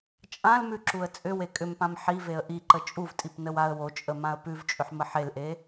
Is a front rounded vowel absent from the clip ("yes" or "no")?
no